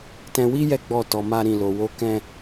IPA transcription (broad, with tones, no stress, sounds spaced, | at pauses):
t ɛ̃˧ w i˦ j ɛ˦ ɡ͡b ɔ˦˨ t ɔ˧ m a˦ ɾ ĩ˦˨ l o˧ w o˦ k ɛ̃˦